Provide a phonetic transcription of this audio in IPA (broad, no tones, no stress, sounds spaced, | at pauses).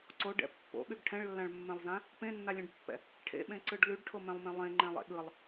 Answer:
ǀ o ɖ ɛ̰ pː o̰ ɓ y ɡ ʈʰ ɛ̃ ɭ lː ã ɭ mː ɛ̃ lˠ z ã | p ẽ nː a lʲ ẽ ɖ pː ɛ̰ | ʈʰ ḛ ɓ ẽ ǀ ɯ ɖ l y ɖ ʈʰ o m ɛ̃ lˠ m ẽ lˠ ẽ ŋ͡ǃ ɛ̃ lˠ ḛ ɠ ɯ lˠ